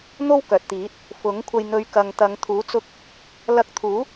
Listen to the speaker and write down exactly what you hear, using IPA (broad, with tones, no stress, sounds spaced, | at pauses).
n̪ o˥ w k œː˨ t̚ t̪ iː˨˥ t̚ | f ʊ˨˥ ŋ kʷʰ ɐ˧ j n̪ ɵ˨˧ ɥ k ɐ˨ ŋ t̪ ɐ˨˧ ŋ t̪ʰ uː˨˥ t͡s ʊ˧ k̚ | l ɐ˧ k̚ t̪ʰ uː˨˥